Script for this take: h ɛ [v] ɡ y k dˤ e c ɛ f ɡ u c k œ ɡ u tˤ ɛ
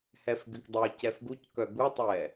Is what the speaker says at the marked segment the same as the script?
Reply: no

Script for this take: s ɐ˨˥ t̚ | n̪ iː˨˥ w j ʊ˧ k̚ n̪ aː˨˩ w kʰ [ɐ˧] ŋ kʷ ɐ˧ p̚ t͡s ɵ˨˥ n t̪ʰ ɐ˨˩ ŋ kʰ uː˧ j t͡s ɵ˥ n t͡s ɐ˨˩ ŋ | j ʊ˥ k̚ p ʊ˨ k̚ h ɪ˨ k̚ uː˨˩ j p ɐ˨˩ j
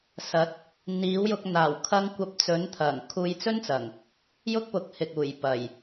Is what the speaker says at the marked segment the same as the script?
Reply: yes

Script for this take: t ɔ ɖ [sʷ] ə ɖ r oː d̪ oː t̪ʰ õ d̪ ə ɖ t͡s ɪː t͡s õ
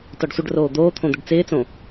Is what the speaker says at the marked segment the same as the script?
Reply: yes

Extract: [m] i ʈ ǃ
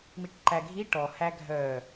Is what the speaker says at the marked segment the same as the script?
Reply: yes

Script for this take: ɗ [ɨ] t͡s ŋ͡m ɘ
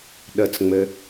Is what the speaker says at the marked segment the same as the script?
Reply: no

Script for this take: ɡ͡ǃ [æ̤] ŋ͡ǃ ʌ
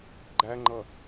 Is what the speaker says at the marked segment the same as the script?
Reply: no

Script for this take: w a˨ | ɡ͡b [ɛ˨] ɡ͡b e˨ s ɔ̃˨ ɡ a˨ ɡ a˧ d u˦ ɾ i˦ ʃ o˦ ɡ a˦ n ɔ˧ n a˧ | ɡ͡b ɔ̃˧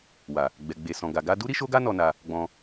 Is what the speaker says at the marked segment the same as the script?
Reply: yes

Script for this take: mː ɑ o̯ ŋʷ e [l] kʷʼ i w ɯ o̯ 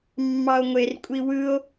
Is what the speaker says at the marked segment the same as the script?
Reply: no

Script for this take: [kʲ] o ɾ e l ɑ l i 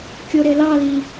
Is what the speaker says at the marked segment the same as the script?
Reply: yes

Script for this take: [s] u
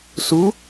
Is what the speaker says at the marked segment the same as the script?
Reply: yes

